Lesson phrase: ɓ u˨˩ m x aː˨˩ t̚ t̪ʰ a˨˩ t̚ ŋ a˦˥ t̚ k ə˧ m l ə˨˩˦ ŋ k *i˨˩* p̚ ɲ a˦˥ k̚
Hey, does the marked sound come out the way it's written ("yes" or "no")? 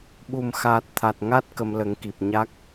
yes